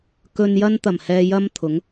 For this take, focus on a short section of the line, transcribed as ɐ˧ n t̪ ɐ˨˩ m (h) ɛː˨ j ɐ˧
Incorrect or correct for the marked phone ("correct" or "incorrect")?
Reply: correct